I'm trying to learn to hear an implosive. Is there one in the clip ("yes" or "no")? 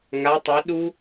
yes